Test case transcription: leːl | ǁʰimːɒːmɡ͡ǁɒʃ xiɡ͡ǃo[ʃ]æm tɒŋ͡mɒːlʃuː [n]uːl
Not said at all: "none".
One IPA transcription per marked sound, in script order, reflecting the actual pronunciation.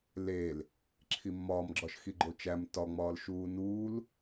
t͡ʃ, n

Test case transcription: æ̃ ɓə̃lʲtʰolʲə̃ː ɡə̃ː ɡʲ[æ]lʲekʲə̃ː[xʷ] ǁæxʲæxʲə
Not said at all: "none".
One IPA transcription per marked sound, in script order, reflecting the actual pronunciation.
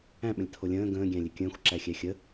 æ̃, xʷ

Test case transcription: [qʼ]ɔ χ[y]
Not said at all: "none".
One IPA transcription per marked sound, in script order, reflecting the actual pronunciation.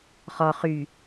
χ, y

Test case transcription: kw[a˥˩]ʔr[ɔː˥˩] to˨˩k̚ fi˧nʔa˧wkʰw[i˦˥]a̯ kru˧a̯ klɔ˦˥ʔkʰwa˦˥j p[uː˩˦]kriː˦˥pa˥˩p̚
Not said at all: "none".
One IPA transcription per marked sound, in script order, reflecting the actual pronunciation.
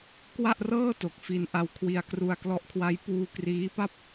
a˥˩, ɤː˥˩, i˧, uː˧

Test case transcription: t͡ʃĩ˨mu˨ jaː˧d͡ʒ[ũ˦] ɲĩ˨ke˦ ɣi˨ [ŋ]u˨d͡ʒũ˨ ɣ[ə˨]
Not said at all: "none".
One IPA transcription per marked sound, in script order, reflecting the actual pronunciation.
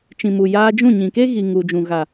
ũ˦˨, ŋ, a˨

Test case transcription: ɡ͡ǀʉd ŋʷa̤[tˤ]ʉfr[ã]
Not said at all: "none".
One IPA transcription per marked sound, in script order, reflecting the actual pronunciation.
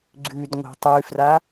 tˤ, a

